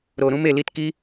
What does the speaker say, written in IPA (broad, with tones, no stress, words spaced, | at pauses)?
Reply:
ɾo˧ɾũ˦m e˧li˦tki˦